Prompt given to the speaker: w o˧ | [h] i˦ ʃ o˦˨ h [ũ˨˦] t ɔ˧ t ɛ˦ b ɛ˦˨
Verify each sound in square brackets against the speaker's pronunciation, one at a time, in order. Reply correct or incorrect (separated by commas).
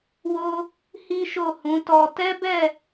correct, correct